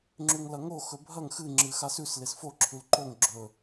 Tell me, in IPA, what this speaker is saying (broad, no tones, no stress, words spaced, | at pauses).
ŋ͡ǁʉŋlɐŋo xɵbʱɐŋ xɨ ŋ͡ǁɨxasʉs lesfo ǁʰʉlǃoŋ ɡ͡ǁɵ